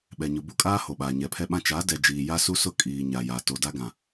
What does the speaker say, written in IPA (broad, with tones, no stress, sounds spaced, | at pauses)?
ɓ ɛ˨ ɲ ʊ˨ b u˦ kʼ aː˦ h o˨ ɓ aː˨ ɲ ɛ˨ pʰ ɛ˦ ɓ ã˦ t͡ʃ a˨˦ d ɛ˨ d͡ʒ iː˨ j a˦ s u˦ s ʊ˦ kʼ iː˨ ɲ a˨ j a˨ t o˨ d a˦ ɡ ã˨